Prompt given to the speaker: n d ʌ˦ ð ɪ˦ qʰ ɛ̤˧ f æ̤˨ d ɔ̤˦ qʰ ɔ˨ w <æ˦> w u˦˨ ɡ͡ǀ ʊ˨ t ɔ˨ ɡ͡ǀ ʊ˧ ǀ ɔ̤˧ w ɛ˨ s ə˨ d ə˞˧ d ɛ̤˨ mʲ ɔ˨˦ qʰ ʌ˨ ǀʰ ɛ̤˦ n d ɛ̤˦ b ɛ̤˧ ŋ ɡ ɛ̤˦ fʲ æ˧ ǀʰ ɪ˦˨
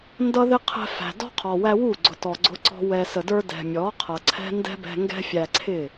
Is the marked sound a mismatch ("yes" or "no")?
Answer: yes